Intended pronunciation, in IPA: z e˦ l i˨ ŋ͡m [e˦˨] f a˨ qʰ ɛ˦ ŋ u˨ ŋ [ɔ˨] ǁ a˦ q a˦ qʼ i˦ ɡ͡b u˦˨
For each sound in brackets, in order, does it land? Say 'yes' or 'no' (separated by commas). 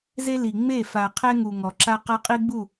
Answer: yes, yes